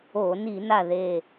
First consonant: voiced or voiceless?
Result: voiced